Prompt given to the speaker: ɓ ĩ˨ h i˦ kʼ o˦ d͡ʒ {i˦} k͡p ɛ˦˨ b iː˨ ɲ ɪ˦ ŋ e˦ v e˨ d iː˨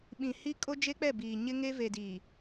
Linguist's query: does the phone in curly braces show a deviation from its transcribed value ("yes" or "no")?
yes